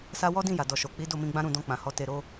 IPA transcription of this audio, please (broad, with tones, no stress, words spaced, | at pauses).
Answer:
sa˧ wɔ˦dĩ˦˨ja˨ dɔ˨ʃo˨k͡pi˨˦ do˦˨mĩ˧ɡ͡bã˦ɾũ˦˨ dɔ̃˧k͡pã˨hɔ˨˦ te˧ɾo˦